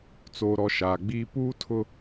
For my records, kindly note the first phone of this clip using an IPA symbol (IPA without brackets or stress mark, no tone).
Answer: t͡s